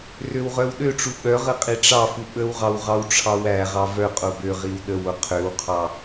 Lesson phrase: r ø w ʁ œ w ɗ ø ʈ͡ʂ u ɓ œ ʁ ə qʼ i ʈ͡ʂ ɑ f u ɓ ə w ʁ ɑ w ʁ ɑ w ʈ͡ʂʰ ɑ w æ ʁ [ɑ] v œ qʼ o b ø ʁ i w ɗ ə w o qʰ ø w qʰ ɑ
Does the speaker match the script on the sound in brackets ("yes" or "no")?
yes